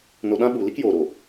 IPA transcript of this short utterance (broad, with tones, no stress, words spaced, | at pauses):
no˧ɗã˦ɓu˨li˦k joː˨ɾo˨